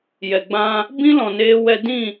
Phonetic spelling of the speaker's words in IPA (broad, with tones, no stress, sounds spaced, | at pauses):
j ɛ˨ ɡ͡b ã˧ | b ĩ˦ l ɔ̃˨ n eː˧ w ɛ˧ d ĩ˦˨